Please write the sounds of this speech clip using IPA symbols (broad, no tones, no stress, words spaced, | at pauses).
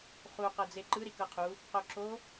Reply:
χu qɤd͡zeǃɯ ɾikɤqʰu | qoǁo